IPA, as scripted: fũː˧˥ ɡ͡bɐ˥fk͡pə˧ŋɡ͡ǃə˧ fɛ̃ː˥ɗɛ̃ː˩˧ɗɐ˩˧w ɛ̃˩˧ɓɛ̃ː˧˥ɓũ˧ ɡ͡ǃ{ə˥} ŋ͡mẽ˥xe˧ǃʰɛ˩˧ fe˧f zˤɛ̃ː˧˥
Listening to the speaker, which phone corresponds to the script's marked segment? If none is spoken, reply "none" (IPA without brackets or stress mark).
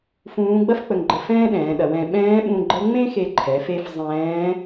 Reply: ə˧˥